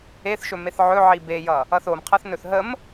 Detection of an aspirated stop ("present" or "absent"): present